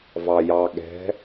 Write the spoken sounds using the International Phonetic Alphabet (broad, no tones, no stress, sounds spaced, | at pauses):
v ɑ j ɑ ɠ ɛ̤